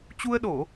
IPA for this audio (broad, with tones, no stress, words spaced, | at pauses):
t͡ɕu˧ə̯ɗo˧˩˨